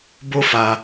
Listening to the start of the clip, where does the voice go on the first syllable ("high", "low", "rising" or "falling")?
high